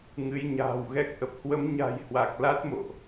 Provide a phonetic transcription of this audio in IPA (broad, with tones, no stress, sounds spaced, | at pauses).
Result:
ŋ ɨ˨˦ j ɲ a̤ː˨˩ w ɣ ɛ˦˥ k̚ ʔ ə˨˩ p̚ h w ə˨˦ m ɲ a̤˨˩ j h w a˨˩ k̚ l a˦˥ t̚ m o̰˧˨ ʔ